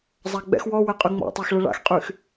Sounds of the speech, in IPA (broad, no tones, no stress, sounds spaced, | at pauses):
zˤ a ɡ͡b ɛ̰ x w ɔ w ɛ qʼ y ŋ͡m ɔ̰ tˤ a x ɭ ə ɭ a̰ x qʼ y x